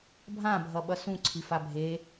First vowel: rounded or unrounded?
unrounded